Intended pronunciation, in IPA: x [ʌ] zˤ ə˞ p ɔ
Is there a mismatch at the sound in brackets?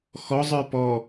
yes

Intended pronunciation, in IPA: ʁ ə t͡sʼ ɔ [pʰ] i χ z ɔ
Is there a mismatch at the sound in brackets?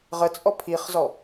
no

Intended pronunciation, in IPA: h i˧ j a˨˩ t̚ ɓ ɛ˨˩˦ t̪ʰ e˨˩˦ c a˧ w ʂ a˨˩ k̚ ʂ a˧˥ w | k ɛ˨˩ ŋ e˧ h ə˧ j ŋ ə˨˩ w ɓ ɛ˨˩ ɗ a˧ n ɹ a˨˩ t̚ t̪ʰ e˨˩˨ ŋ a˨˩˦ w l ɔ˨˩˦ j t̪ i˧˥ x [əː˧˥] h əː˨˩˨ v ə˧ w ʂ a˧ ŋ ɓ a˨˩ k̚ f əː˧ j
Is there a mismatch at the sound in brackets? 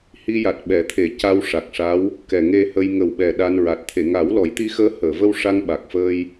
no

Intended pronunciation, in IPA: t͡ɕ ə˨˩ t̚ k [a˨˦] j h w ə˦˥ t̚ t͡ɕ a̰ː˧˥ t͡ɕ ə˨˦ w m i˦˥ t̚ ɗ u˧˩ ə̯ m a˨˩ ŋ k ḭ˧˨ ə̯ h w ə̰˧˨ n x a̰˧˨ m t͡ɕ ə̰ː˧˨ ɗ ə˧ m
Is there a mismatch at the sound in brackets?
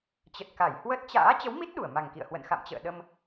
yes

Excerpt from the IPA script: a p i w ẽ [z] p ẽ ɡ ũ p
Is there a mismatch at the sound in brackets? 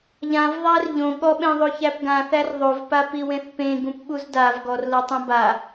yes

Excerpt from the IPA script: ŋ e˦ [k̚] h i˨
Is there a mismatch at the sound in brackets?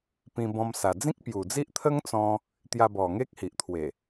no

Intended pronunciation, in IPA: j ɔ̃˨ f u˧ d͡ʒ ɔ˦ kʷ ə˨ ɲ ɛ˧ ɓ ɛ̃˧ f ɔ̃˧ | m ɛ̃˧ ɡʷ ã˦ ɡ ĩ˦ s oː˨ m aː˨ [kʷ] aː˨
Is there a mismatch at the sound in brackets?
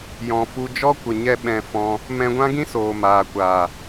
no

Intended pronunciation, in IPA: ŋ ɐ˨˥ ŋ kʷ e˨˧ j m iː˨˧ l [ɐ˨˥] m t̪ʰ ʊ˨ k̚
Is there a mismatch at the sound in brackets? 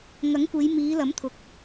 no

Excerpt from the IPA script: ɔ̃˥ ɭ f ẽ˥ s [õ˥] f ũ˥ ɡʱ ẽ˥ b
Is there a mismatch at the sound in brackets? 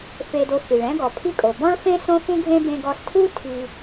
no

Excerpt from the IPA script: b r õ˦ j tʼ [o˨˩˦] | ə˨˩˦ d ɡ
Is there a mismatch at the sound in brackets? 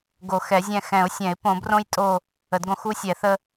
yes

